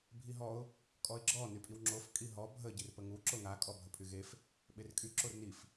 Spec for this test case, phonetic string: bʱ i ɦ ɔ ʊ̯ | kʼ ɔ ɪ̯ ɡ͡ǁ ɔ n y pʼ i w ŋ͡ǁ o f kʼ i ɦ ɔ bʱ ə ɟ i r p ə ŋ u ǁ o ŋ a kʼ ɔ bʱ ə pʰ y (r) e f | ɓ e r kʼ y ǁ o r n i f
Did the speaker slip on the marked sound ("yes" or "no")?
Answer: yes